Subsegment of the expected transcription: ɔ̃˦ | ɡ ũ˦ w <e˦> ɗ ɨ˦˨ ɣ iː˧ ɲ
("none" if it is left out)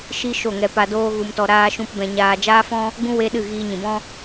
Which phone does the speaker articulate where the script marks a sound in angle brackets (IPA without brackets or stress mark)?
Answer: e˦